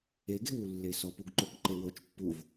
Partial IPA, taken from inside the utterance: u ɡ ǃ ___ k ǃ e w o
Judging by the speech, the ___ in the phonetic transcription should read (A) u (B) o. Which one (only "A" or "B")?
B